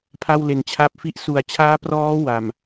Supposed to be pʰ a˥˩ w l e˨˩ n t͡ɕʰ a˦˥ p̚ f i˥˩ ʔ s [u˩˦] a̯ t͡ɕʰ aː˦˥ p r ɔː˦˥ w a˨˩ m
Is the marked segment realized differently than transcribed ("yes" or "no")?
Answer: yes